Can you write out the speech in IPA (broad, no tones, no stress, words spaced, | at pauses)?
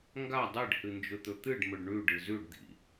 ŋɡa dˤeɖhɨnd͡ʒɵt̪ɵ t̪ɨɖmɵɖ ɳʉɖɨ zʉɖd̪ḭ